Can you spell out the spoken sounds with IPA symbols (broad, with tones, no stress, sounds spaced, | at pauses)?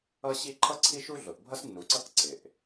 ʌ˥ ɕ i˥ ǃʰ ʌ˥ ǀʰ i˥ ʃ u˥ ɮ ʊ˩ ʔ bʱ ʌ˥ s nː u˩ ǀ ʌ˥ k ǀ ɪ˩ ʔ